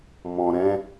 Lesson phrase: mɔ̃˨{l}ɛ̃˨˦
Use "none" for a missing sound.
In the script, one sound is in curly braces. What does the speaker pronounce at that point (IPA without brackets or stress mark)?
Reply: ɾ